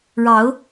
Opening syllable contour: rising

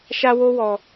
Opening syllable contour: high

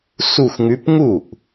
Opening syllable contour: falling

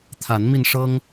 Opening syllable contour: rising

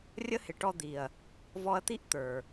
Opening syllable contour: high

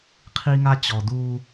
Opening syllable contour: high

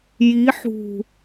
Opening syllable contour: rising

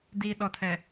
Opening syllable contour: low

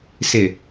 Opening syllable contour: low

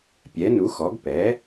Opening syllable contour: rising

